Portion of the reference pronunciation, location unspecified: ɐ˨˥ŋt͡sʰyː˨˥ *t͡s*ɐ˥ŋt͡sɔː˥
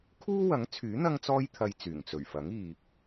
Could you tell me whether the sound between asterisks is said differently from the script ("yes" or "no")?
yes